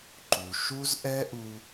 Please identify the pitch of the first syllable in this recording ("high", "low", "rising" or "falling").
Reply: low